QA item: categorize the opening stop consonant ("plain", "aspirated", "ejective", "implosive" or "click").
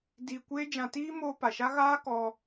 plain